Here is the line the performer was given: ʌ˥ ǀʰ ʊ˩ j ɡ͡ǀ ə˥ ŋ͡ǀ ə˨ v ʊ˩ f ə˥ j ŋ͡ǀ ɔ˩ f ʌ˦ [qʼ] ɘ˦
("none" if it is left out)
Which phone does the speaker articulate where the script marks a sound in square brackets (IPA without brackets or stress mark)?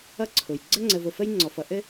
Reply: ʔ